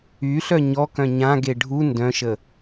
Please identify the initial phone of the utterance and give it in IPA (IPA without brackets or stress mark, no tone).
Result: y